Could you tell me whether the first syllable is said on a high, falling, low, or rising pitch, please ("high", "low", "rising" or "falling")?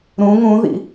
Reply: rising